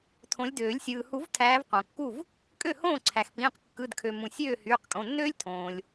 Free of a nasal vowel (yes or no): no